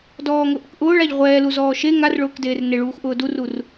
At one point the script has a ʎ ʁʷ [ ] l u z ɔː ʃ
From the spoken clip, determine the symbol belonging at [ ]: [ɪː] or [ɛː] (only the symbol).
ɛː